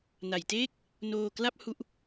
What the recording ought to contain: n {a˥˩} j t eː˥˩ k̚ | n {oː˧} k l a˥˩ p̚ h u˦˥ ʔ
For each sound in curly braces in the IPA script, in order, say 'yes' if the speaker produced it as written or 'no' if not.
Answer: no, yes

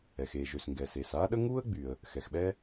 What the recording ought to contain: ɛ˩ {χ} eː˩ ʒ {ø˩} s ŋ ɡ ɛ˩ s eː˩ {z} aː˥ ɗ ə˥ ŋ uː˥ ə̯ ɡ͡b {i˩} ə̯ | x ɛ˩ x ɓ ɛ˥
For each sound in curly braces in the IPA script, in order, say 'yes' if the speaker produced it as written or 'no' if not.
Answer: no, yes, no, no

